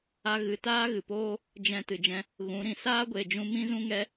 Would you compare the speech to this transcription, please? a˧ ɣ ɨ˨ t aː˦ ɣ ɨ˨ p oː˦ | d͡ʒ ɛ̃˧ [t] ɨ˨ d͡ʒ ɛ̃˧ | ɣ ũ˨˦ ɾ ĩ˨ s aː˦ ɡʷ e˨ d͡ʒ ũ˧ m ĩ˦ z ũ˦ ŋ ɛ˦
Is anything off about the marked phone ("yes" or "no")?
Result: no